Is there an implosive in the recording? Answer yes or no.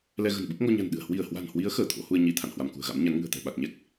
yes